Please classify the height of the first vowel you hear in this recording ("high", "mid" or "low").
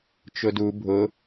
high